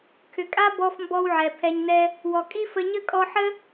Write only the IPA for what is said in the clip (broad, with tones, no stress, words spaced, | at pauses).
kʰʏ˨kʼa˦ bɔ˧fmbɔ˧w ʕɛ˨pʰɛ˧ɲnɛ˦ | wɔ˨kʼi˦ fə˧ɲə˦ kʼɔ˧ħə˦